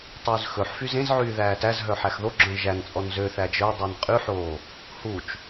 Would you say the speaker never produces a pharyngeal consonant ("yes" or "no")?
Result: no